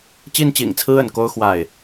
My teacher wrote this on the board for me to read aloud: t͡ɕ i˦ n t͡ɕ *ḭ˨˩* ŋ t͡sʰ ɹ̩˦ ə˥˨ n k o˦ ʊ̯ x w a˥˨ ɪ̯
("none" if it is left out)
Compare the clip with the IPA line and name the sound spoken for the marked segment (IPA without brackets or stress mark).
ḭ˨˩